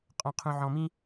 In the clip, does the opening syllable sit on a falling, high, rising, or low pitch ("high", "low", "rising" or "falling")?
low